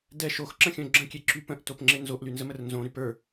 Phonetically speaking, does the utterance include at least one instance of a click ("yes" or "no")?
yes